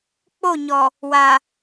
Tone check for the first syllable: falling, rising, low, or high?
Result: falling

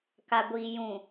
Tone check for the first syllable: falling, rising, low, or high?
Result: low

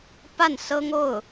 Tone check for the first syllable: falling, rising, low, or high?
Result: falling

